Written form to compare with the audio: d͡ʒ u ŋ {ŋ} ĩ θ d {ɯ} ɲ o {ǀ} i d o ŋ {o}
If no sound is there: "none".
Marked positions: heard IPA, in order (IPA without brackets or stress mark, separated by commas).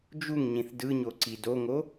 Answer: ɲ, ɯ, ǀ, o